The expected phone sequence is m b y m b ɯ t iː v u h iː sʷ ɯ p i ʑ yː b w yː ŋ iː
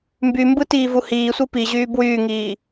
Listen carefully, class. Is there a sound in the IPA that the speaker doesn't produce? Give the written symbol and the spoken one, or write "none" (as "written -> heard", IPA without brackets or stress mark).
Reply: none